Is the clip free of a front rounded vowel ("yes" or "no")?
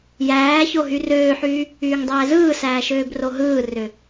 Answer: no